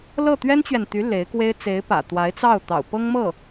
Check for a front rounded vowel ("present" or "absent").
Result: present